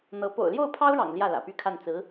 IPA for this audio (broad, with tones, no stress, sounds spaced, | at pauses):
n̪ ɤ˧˥ p o̰˨˩ ʊ̯ l j o˥˩ ʊ̯ pʰ ɑ˥ ʊ̯ ɻ ɑ̰˨˩ ŋ l j ä˥˩ l ä̰˨˩ p y˥˧ kʰ a˥˩ n t͡s ɹ̩˧˥